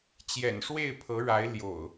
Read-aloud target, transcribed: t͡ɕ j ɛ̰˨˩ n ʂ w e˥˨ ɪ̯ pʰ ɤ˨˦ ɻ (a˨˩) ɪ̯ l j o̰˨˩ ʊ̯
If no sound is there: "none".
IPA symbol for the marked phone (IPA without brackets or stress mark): a˨˦